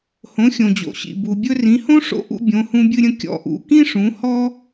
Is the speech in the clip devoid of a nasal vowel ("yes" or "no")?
no